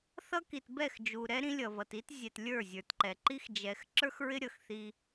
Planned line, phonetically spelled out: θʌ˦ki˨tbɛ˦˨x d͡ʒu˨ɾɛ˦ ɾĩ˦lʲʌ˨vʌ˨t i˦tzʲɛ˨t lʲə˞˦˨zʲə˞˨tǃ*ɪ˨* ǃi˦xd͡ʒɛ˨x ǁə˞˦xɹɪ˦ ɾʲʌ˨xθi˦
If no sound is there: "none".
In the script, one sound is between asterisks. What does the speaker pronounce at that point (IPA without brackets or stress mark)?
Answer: ɛ˨